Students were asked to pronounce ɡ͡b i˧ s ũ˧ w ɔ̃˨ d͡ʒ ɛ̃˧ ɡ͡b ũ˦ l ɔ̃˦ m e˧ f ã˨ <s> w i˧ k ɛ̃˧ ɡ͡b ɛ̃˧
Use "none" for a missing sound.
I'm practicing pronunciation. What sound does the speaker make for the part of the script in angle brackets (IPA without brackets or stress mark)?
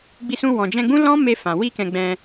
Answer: none